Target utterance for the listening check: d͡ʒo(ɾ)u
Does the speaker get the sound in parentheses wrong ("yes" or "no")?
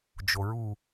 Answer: yes